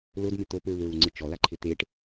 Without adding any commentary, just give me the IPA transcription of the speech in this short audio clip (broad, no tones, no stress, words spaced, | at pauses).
lʊdmɪ t̪opɹuɹuŋ͡ǀɪ t͡ʃɔlaǃʰɪ t̪eʈ